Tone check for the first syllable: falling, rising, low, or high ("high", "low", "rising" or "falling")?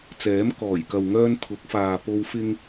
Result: rising